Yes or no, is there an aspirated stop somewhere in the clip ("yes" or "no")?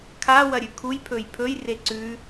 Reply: yes